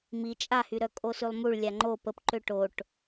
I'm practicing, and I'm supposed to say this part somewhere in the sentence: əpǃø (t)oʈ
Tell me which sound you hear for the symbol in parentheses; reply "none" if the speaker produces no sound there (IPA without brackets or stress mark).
ʈ